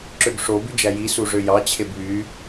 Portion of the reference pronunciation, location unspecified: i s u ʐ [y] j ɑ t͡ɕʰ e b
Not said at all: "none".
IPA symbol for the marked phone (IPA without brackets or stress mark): ø